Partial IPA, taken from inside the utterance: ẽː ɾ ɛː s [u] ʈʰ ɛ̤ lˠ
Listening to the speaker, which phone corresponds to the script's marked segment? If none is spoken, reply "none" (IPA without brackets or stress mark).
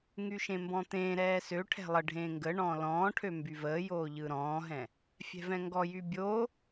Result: ø